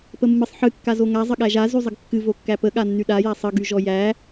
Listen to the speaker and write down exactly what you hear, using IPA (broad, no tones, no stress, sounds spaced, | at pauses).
p ə mː ɨ sˤ ħ ɨ kː a z o ŋ a zˤ ə ɠ æ ʒ a z y zˤ ə ɡ kː ɨ v o kː æ p ə ɠ a nː y ɗ a j a sˤ ə ɡ y ʒ ɔ j æ